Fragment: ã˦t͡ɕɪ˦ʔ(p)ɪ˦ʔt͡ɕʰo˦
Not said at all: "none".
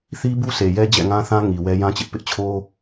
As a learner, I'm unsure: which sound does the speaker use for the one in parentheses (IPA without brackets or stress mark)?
p